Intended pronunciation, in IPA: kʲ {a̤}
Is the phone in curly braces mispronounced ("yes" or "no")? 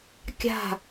no